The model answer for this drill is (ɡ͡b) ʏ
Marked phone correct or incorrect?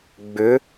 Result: correct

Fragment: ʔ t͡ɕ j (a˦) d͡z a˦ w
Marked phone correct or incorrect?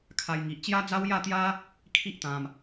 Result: correct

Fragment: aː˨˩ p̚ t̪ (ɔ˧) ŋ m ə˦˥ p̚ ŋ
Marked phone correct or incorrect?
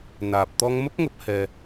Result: correct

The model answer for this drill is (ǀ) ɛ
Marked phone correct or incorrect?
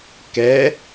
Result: incorrect: k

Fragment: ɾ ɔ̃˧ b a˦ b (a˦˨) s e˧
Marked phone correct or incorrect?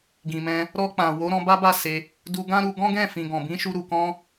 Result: correct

